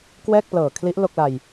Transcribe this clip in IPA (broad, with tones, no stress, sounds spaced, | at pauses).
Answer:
k w ɛː˥˩ k̚ p l ɤː˨˩ kʰ l i˦˥ ʔ l o˥˩ k̚ l a˧ j